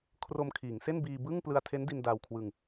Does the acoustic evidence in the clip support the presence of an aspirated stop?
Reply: yes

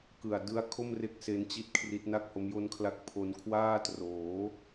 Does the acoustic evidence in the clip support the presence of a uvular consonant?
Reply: no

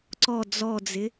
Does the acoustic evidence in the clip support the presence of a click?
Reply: yes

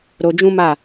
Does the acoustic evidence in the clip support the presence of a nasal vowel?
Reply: yes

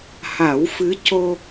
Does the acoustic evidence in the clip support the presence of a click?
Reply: no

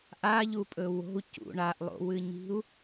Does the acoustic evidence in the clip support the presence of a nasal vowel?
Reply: no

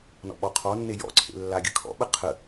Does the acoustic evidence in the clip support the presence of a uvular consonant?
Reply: yes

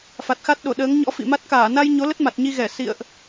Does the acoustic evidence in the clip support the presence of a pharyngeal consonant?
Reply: no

